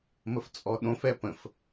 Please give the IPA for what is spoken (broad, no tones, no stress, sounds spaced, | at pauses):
m ə f t͡sʼ ɔ ɗ õ f ɛ p ə̃ f